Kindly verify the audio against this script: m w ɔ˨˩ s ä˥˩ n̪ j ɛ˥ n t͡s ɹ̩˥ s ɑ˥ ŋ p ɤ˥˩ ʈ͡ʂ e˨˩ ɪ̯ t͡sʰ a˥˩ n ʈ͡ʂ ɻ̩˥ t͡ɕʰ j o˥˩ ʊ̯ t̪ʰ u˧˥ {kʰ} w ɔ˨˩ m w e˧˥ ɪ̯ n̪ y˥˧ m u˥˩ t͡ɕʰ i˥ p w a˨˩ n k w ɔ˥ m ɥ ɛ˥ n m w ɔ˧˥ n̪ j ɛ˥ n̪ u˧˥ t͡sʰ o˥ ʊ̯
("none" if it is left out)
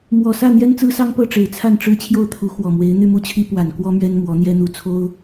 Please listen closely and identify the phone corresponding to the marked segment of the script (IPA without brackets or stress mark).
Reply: x